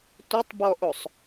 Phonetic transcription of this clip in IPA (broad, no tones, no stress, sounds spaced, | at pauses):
tʷ ɪ tˤ b ɔ ʔ o sˤ